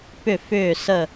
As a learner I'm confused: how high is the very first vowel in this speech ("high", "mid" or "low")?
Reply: high